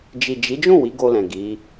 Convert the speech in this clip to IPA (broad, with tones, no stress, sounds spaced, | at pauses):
d͡ʒ i˨ d͡ʒ i˨˦ d͡ʒ ũ˦˨ w i˨˦ ɡ o˧ l ɛ̃˨ ɡ i˨˦